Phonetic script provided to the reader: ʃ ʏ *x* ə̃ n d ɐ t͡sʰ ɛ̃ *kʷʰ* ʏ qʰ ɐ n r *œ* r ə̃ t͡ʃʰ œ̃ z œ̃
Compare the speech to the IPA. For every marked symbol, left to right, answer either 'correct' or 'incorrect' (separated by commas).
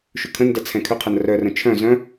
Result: incorrect, incorrect, correct